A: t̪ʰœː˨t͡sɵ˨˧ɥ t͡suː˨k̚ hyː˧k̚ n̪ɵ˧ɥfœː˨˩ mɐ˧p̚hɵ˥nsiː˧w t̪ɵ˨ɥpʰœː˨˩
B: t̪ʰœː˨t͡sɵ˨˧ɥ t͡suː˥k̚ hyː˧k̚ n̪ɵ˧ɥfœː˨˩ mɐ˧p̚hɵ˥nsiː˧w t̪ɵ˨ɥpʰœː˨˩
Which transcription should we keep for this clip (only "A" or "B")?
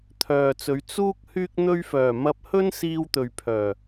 B